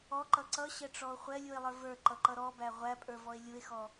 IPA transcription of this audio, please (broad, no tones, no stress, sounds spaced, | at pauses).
ɔ ǃ ʌ ǀ ʌ ɕ ɛ ʈ͡ʂ ɔ o̯ χʷ ɛ lʲ u e̯ lˠ ə˞ v ə˞ ǃ ʌ ǃ ʌ ɾ ɔ b æ ʁʷ æ pʼ ə˞ v ɔ e̯ lʲ u e̯ x ɔ